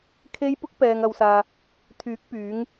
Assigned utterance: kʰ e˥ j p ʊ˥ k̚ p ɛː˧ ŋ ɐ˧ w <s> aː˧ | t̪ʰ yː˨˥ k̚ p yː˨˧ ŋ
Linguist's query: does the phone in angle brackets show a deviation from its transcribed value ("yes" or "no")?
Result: no